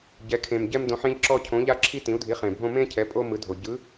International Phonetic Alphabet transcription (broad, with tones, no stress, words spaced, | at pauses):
ɟɛ˧˥kʰẽ˧m ɟɛ˥mdõ˧˥ħẽ˥ʎ ǁɔ˥cʰõ˧˥ ʎa˥ǁʰi˥ tĩ˧˥u̯dʱi˧˥χẽ˧bʱõ˥ mẽ˥ cʰɛ˧˥pʼo˥ mɯ˧˥dʱo˧ ɟɯ˧˥